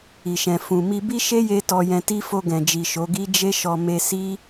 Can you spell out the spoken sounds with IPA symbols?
i˨ ʃ ɛ̃˨ f ũ˨ m i˧ b i˦ ʃ e˦ j e˧ t ɔ˧ j ɛ̃˧ t i˦ f o˧ ɡ ɛ̃˨ d͡ʒ i˨ ʃ o˨˦ ɡ i˦ d͡ʒ e˦ ʃ ɔ˧ m e˧ s i˦

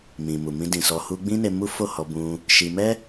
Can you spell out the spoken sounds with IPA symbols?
m ĩ˨ m u˨ m ĩ˧ d ĩ˨ s ɔ˧ h u˧ ɡ͡b ĩ˦ n e˧ m u˦ f o˦˨ h ɔ˧ b ũ˧ | ʃ i˧ m ɛ˦

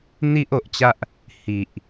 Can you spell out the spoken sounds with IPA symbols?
n̪ i˦ ʔ o˨ ʔ t͡ɕ a˦ ʔ | h i˨ ʔ

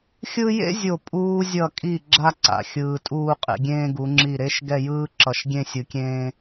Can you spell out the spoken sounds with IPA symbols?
xʲ ɯ˥ j ḛ˥ zʲ o˧˩ pʼ uː˧ zʲ ʌ˧˩ kʼ i˧˩ ɡ͡ǁ a˥ ǀ a̰˧˩ xʲ ɯː˧ tʼ uː˥˧ qʼ ḛ˧ ɡʲ ẽː˥ ɡ u˩˧ ŋ͡ǁ i˧˩ ɾ e˥˧ ʃ ɡ ɛ˥˧ j ɯː˥ ǁ ʌ˧˩ ʃ ɡʲ ẽ˥˧ sʲ ɯ˧ kʲ ẽː˥

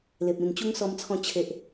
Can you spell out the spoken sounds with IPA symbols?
l e˨ p̚ ĩ˨˩ n t͡ɕ u˦ ŋ s ɔ˧ m t͡sʰ ɔ̃˧ t͡ɕʰ e˨ ʔ

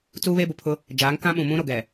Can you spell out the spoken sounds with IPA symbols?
t͡s uː˦ β e˦ b ʊ˨ pʰ ʊ˦ | d͡ʒ aː˨˦ ŋ k ã˦ ɓ ũ˨ m ũ˦ ɾ o˨ ɡ ɛ˨

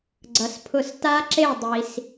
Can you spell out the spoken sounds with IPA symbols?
ɡ͡ǀ ʌ˨ s pʰ ʊ˥˩ s t a˦˥ ǁ e˥˩ dˤ i˨ s

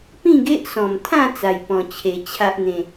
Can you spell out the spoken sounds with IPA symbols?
p ĩ˥˧ ɡ e˦ ʔ s ɔ̃˨˩ m t̪ʰ ã˥˧ t͡s a˧ j p ɔ̃˧ t͡ɕʰ e˧ t͡ɕʰ a˦ ʔ n̪ ẽ˧

